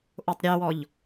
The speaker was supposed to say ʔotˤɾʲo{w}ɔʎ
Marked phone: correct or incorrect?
correct